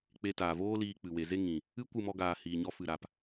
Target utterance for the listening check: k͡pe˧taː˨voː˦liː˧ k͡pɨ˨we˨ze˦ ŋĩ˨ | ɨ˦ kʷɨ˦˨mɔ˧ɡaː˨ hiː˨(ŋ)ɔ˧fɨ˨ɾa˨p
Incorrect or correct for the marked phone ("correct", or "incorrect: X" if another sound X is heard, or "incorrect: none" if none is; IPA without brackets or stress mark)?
incorrect: ɲ